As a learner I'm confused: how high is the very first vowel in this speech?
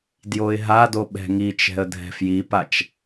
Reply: mid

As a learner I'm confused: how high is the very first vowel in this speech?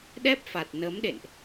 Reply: mid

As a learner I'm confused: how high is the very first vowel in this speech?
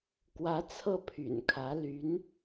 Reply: low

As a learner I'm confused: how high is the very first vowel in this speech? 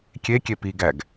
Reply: mid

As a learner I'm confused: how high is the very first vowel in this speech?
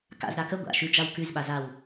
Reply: low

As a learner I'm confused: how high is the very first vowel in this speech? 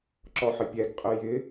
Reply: mid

